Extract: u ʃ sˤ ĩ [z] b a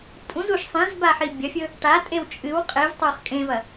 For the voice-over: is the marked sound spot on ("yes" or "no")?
yes